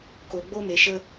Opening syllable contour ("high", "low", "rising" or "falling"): low